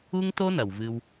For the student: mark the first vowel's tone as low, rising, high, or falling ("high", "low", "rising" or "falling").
high